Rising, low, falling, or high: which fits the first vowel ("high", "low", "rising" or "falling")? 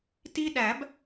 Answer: high